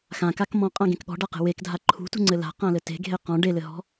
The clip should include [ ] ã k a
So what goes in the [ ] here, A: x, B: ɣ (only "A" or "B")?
A